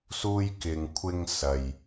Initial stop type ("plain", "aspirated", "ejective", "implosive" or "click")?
plain